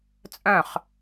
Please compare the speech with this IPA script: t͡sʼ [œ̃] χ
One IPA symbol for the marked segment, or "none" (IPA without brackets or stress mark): œ̃